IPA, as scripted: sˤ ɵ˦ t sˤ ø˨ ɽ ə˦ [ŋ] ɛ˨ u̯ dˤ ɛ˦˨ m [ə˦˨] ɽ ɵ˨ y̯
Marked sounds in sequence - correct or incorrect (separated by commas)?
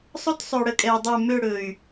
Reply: incorrect, incorrect